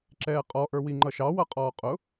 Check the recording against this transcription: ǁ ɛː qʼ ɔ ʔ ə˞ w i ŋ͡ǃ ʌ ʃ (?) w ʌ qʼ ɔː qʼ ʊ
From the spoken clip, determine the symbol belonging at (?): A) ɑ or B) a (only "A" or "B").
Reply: A